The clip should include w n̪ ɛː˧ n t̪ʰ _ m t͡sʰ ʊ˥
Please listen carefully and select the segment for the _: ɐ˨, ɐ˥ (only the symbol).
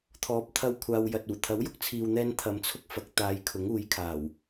ɐ˨